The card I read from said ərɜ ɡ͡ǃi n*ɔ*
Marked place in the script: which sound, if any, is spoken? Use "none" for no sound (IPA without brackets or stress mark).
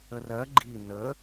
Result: ə